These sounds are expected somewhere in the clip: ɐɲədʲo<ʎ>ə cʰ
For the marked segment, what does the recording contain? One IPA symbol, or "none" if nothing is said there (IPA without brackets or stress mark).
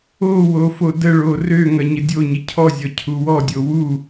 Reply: ɲ